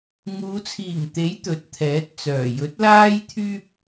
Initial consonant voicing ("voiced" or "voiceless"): voiced